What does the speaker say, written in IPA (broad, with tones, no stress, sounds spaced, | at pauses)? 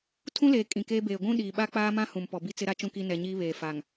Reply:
tʰ ũ˦ l eː˨ kʼ ĩ˨ k eː˦ b eː˨ ɡʷ ũ˦ ɗ iː˨ ɓ a˦ k͡p aː˦ m ã˦ h ũ˨ m p ɔ˨ b i˦ t͡s ɪ˦ ɾ a˦ t͡ʃ ũ˦ k i˦ n ɛ˨ ɲ iː˦ β eː˨ f aː˨ ŋ